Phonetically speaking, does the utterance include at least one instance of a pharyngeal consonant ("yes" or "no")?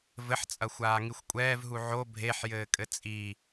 yes